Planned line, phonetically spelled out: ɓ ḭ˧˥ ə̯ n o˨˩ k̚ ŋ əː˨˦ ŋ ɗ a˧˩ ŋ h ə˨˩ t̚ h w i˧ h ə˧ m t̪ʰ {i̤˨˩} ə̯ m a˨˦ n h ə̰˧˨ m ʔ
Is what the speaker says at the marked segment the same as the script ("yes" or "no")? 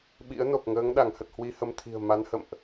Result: yes